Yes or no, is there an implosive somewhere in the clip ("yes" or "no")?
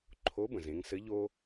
no